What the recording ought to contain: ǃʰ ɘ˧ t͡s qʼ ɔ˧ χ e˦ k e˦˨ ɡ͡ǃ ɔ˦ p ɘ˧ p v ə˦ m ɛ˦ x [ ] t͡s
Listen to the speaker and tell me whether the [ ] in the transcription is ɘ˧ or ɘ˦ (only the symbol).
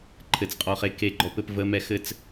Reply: ɘ˦